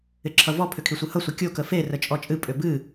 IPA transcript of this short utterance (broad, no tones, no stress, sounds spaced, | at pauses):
ɪ ǁʰ ʌ v ɔ pʰ ʏ kʰ i sʷ ɨ h ʌ sʷ ʌ kʲ o k ə f e r ə t͡ʃʼ ɔ t͡ʃʼ ɨ pʼ ʏ b ɨ